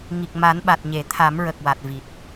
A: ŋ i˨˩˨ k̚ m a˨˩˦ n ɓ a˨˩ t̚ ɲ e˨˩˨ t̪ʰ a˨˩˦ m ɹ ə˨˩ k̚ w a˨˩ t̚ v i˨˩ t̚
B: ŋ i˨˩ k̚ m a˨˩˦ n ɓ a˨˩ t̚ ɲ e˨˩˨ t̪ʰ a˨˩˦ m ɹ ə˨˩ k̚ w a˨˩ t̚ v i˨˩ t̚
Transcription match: B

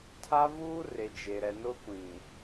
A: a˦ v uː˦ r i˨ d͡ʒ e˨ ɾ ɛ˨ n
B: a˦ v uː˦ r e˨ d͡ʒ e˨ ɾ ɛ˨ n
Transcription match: B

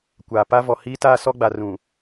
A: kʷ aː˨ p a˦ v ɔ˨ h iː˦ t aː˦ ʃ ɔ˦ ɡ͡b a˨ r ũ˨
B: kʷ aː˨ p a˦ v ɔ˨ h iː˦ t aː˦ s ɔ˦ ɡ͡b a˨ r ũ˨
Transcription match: B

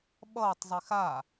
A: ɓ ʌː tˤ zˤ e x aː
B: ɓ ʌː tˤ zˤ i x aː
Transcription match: B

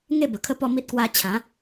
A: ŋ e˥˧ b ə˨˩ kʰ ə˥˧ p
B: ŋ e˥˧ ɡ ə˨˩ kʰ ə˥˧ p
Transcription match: A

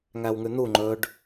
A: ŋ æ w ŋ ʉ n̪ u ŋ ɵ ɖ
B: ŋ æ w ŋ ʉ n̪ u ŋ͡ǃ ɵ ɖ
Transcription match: B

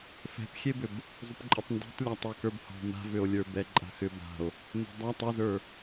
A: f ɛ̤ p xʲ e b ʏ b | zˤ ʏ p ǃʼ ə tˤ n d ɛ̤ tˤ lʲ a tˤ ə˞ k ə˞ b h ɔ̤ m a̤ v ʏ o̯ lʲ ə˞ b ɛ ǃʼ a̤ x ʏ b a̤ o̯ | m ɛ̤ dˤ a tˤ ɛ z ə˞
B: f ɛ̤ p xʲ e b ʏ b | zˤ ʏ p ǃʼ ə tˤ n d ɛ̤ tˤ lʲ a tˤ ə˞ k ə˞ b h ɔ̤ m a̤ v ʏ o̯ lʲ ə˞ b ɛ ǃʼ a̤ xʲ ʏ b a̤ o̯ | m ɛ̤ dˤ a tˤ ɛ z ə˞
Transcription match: A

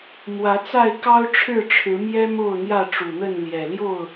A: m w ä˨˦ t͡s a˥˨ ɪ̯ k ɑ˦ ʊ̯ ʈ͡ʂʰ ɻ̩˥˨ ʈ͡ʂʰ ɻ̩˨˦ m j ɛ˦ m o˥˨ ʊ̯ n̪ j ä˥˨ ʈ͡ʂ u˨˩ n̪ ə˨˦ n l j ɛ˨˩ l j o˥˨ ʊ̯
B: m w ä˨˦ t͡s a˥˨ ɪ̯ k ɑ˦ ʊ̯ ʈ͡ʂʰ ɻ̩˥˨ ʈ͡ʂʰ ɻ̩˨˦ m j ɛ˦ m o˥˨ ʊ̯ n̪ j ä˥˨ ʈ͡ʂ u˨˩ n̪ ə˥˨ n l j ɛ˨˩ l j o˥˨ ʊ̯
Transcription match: B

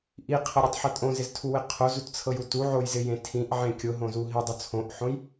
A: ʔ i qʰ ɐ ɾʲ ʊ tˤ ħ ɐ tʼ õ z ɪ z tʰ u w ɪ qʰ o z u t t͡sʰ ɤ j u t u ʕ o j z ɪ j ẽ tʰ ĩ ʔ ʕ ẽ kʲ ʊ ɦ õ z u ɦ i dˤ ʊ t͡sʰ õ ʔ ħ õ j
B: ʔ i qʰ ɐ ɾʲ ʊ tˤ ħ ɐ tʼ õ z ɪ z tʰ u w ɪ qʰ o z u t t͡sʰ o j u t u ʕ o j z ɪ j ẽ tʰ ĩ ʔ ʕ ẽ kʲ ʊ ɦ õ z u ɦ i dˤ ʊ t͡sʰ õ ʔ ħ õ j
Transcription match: A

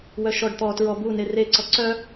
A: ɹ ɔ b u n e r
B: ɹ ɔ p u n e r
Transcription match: A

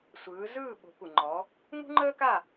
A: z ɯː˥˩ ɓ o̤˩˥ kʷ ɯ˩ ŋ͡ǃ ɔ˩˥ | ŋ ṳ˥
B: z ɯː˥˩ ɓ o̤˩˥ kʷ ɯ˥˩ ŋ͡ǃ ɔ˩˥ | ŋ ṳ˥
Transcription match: A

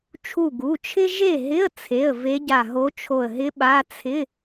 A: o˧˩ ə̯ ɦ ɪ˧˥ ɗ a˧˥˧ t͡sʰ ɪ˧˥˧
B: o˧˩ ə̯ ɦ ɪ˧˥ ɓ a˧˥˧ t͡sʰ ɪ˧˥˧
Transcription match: B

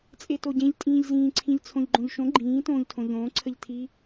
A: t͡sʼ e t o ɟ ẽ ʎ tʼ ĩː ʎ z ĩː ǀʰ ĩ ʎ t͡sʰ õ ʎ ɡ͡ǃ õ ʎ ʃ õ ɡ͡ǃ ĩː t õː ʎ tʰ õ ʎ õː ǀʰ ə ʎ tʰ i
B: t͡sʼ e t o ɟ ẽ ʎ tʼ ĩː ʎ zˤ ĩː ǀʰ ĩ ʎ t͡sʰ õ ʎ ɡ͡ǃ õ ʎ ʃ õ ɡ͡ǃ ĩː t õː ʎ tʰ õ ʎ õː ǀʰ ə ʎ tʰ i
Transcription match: A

